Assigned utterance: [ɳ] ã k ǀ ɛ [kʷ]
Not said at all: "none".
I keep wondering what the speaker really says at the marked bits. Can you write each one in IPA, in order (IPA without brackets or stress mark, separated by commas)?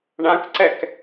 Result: ɳ, k